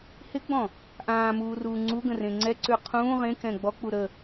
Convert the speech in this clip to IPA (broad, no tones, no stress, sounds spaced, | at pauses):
h ɪ ɡ͡b ɔ̃ | ʔ ãː m uː r uː ŋ͡ǀ u ɡ ə̃ r ẽ ŋ͡ǀ ɛ ǀ ʉ qʰ ũː ʁ ẽ k ɛ̃ ɡ͡b ɔ k͡p u ɾ ə